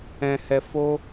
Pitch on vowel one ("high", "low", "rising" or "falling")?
high